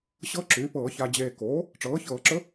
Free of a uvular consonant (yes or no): yes